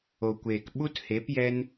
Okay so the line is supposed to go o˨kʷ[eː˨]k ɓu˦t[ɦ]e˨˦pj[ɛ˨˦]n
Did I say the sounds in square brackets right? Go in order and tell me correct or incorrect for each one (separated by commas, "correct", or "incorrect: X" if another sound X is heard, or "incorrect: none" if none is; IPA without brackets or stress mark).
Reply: correct, incorrect: h, incorrect: ɛ˦